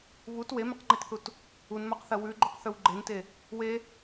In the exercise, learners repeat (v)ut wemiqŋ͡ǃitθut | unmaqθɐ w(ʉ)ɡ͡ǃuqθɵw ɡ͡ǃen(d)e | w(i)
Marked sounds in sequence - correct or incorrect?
incorrect: β, correct, incorrect: t, incorrect: e

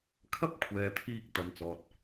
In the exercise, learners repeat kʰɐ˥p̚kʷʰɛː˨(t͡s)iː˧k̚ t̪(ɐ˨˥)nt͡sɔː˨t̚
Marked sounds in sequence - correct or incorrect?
incorrect: t̪ʰ, correct

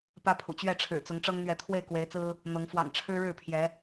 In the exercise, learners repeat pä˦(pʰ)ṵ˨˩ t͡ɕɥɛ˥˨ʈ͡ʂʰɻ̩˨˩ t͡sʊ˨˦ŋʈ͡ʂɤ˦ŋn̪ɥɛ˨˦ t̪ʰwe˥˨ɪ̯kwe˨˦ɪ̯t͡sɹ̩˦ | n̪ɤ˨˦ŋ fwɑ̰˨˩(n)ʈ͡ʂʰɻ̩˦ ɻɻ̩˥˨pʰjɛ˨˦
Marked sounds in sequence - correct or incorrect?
correct, incorrect: ŋ

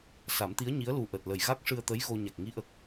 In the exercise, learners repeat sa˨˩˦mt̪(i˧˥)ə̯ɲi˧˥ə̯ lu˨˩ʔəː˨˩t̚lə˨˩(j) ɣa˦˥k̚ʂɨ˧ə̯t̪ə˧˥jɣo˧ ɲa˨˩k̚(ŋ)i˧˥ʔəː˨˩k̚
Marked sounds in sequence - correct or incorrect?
correct, correct, correct

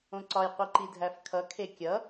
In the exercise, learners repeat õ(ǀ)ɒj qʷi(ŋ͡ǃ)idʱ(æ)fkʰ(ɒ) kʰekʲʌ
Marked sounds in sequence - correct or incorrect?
correct, incorrect: ǃ, correct, incorrect: ʌ

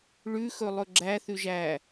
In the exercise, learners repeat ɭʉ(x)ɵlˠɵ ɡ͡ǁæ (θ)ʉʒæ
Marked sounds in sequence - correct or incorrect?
correct, correct

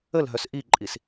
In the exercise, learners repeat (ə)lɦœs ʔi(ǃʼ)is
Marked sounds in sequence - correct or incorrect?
correct, correct

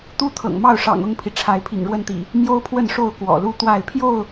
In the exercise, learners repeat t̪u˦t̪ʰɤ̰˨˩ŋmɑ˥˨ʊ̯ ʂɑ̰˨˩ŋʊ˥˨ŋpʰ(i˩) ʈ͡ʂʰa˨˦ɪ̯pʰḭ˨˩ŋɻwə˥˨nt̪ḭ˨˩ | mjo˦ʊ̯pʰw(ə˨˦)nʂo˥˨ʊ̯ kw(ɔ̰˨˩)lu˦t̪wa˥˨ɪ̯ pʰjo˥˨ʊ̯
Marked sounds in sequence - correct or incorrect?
correct, incorrect: ə˥˨, correct

